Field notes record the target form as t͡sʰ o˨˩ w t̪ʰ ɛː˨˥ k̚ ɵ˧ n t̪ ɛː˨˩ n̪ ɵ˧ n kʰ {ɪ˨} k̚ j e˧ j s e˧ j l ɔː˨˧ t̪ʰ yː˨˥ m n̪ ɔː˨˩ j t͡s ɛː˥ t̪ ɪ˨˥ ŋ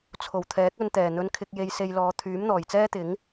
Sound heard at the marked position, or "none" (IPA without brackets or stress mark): ɪ˧